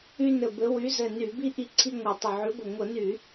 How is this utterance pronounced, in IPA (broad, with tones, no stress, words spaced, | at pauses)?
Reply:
y˦nɘ˧˩bɘ˨˦ wy˨˦zɘ˧˩ ny˧˩˧bi˦ ʔi˦ǀʰi˦ŋʷa˧˩tˤə˧˩ ʕy˨˦ɡʷɘ˧˩ ŋʷə˧˩˧ny˧˩˧